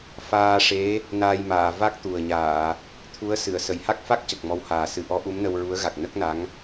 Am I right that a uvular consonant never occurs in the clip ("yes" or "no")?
yes